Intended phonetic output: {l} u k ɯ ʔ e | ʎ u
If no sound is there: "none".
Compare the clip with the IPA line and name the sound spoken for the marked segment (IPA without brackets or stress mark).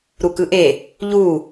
ɾ